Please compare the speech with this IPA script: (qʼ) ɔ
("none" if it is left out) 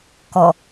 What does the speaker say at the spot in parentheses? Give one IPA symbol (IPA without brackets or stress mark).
k